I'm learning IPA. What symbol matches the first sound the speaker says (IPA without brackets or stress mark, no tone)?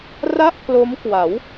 r